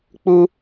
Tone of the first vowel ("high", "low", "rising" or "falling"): high